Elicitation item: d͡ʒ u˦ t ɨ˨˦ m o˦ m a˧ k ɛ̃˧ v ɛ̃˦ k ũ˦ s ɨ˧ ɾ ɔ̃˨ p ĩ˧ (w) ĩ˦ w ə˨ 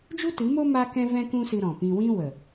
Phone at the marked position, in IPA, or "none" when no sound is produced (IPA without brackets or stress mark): w